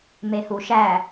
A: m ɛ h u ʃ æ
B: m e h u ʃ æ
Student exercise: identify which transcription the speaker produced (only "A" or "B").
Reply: B